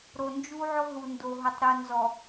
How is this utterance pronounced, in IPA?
ɾ o˨ n d͡ʒ u˦ ʕ ʊ˦ ɦ u˨ n d o˨ ɦ ʊ˨ tˤ ɾ u˨ n z ɔ˨

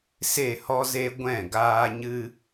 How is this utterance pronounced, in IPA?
s e˦˨ h ɔ˦ z e˦ ɡʷ ɛ̃˦˨ ɡ aː˦ ɲ ɨ˦

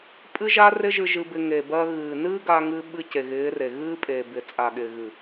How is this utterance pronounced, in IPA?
pʼ ɨ˦ ʒ a˦ r ɪ˦ ʒ ɨ˧ ʒ ɨ˧ b ɪ˧ ŋ e˨ b ɜ˧ ɣ ɨː˨ n ɨː˦ ɡ a˧ ŋ ɨː˧ ɓ ɨ˧ c e˨ ɣ ɪː˨˦ r e˨ ɣ ɨː˦ pʼ eː˨ b ɪ˨ t͡sʼ a˨ ɠ ɪː˨ ɣ ɨ˨

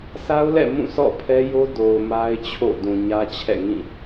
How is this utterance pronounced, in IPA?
sʰ a˦ ʊ̯ l ɛ̰˦˨ m ũ˦˨ sʰ ɔ̰˦˨ pʰ ɛ˦ j o˦ d o˨ ʊ̯ m a˦ ɪ̯ t͡ɕʰ o̰˦˨ d ũ˨ ɲ ä˦ t͡ɕʰ ɛ̰˦˨ ŋ ĩ˦˨

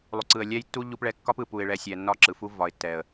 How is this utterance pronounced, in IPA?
lˠ u˨ ǀ ɯ˨ ə̯ lʲ ɛ˦ j tː u˦ ʎ u˦ p ɭ ɛ˦ kː ɒ˦ p ɯ˨ p u˨ ɪ̯ ɭ ɛ˨ sʲ ɛ˨ nː ɒ˦ ǁ ɯ˨ f u˦ v ɒ˨ ɪ̯ tː ɛ˨ ə̯

